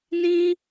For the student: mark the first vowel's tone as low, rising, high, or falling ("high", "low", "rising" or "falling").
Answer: high